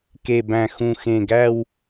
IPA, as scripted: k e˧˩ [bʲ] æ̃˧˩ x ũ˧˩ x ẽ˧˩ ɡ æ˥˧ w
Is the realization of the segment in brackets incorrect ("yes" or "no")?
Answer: yes